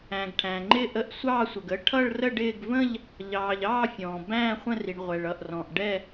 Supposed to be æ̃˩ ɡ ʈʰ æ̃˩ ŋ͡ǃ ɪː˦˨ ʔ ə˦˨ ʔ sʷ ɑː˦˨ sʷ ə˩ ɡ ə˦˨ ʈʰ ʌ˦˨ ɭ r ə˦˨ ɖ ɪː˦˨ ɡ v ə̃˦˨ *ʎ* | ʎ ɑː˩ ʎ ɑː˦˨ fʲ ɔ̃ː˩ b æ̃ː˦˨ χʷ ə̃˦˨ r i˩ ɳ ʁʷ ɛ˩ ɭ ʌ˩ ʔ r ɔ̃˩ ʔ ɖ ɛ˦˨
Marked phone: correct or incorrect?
correct